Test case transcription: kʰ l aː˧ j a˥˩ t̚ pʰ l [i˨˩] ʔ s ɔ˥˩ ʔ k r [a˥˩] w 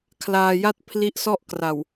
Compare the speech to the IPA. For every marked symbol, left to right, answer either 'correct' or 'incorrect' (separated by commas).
incorrect, incorrect